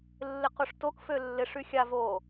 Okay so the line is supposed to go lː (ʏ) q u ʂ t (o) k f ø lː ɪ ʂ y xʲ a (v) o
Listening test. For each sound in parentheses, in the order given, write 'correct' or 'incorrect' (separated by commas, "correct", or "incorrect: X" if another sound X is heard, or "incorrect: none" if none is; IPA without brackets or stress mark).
incorrect: ɪ, correct, correct